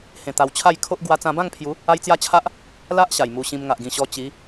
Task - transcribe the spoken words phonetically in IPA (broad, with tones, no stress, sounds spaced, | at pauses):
h ẽ˧ t̪ a˧ w t͡ɕʰ a˥˧ j kʰ o˦ ʔ ɡ w a˧ t͡s ã˧ b ã˥˧ ŋ pʰ j u˨˦ | a˦ j t͡s j a˥˧ t͡ɕʰ a˦ ʔ | l a˦ ʔ ɕ a˨˩ j m u˧ ɕ ĩ˧ m ŋ a˨ ʔ ɡ ĩ˨˩ ɕ ɔ˧ t͡ɕ i˨˦